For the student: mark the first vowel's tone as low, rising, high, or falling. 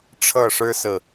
falling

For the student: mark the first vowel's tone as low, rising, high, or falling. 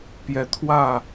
rising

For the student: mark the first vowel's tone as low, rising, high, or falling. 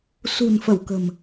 low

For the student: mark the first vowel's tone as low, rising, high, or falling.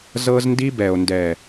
high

